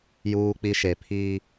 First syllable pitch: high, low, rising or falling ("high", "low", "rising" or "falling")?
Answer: high